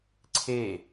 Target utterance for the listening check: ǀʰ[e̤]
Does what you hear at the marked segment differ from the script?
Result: yes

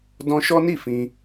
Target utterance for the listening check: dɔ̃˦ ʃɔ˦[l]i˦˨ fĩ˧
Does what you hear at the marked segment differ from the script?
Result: yes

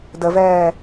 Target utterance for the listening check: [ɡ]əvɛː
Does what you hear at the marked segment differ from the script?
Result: yes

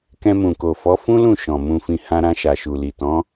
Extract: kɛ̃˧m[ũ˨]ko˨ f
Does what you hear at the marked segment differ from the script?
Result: no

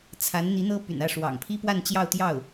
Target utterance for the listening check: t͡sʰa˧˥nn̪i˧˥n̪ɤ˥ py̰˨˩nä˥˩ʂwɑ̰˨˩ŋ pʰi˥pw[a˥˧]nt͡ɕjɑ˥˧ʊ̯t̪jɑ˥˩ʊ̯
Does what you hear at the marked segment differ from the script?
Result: no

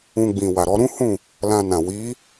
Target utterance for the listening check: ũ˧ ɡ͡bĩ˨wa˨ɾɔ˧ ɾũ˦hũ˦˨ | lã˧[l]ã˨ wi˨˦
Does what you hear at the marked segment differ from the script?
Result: yes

